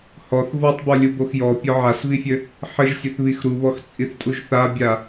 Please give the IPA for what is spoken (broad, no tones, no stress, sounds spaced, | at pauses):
h ɔ θ v ɔ tˤ b ɔ lʲ u b o x j ɔ pʲ ɔ ʕ a s v i fʲ ɘ | ħ ɘ ʒ sʲ ɘ θ β i x ɾ u β ɔ x t͡sʼ i θ tʼ u ʒ θ a bʲ a